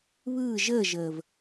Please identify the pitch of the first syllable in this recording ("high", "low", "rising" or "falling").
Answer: falling